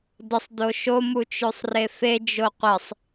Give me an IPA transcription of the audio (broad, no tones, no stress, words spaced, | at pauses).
dəsˤ doʃomut͡ʃøsˤ refed͡ʒo qʷɛsˤ